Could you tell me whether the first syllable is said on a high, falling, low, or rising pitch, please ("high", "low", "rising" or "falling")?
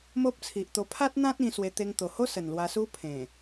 high